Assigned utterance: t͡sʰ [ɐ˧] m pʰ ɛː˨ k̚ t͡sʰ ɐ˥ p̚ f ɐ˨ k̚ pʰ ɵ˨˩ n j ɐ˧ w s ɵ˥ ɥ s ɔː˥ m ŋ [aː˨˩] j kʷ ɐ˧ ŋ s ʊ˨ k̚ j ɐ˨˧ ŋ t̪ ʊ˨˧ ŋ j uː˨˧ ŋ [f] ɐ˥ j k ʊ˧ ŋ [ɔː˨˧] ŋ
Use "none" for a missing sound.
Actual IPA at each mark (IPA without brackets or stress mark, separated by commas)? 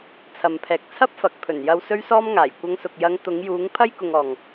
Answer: ɐ˨, aː˨˩, pʰ, ɔː˨